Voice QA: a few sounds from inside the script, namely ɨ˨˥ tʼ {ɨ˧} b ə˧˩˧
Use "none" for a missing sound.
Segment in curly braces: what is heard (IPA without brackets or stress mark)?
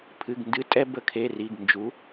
ɛ˧